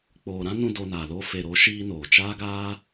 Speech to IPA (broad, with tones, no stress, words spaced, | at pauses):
k͡poː˨ɾã˦nũ˧ doː˧naː˨ lo˦ fe˨ɾo˨˦ ʃiː˦noː˨ t͡ʃaː˦ɡaː˦